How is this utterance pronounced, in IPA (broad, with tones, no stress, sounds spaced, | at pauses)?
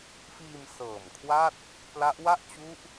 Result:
f iː˧ m s ɤː˨˩ m kʰ w a˥˩ t̚ | p l a˦˥ ʔ w a˥˩ ʔ t͡ɕ u˦˥ ʔ